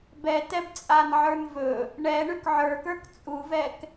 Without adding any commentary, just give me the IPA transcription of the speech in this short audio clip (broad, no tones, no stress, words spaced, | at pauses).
bɛtɛbt͡sʼanʕə˞n vɵ | ɳɛ ɳʉkʕə˞kə˞k t͡sʼuvɛk